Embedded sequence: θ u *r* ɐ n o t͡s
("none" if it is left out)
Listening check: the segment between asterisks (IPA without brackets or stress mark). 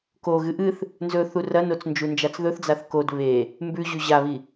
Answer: r